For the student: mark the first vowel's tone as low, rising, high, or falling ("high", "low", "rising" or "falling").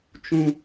high